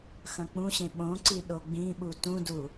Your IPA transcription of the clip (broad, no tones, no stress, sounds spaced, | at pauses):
x ɐ̃ k͡p ũ ɕ ẽ ɓ õ ǀ i ɗ o ɡ͡b ĩ ɓ u t ũ d u